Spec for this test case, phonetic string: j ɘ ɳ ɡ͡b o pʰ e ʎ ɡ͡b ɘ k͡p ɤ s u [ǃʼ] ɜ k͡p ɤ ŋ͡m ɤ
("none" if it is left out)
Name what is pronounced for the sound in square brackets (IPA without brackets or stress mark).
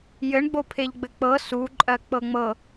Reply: ǃʼ